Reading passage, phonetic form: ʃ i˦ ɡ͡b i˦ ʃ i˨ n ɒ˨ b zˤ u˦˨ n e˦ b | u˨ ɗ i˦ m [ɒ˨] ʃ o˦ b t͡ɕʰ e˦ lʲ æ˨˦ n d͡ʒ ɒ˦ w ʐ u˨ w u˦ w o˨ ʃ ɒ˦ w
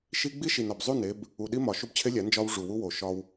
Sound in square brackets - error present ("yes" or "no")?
no